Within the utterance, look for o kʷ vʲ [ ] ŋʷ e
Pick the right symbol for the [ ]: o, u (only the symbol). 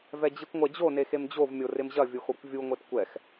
u